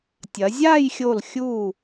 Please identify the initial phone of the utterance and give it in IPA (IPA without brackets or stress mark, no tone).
tʲ